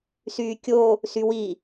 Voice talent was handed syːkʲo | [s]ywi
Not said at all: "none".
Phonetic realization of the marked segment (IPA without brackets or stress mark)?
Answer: s